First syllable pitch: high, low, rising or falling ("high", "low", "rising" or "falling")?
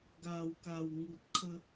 low